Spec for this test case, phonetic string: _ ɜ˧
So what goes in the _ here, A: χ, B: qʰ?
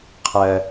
B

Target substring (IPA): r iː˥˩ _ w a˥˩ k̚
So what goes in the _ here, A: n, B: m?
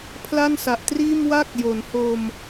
B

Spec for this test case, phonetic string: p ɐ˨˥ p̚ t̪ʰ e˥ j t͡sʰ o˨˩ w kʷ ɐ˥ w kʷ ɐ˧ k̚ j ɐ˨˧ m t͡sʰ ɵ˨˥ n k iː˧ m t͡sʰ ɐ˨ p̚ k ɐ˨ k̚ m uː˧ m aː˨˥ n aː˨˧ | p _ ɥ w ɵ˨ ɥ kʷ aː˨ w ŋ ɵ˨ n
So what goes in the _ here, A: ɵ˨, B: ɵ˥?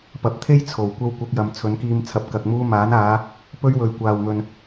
B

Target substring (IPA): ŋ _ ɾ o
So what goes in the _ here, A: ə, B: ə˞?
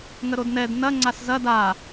A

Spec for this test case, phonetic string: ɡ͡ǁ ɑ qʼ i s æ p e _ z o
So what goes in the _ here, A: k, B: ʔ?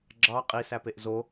B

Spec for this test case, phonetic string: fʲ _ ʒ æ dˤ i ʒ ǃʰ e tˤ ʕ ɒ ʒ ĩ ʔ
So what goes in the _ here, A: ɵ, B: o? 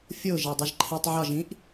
B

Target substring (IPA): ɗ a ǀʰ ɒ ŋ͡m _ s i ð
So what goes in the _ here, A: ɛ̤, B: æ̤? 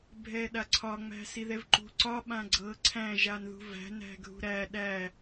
B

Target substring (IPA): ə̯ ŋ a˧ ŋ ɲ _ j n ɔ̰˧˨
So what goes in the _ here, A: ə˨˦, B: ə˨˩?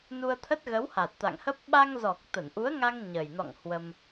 B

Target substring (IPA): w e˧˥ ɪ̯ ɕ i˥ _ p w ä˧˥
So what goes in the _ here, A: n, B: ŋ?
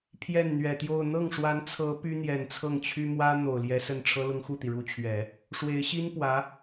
A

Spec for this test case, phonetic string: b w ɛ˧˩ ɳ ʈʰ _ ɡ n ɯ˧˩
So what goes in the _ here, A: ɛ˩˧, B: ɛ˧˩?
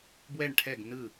B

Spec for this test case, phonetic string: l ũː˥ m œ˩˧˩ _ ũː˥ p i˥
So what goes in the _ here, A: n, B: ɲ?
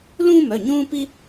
B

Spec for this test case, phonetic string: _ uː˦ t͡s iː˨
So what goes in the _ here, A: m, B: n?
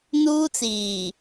B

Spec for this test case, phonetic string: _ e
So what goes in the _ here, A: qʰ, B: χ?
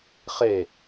B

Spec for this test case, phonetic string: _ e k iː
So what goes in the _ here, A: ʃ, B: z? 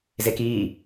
B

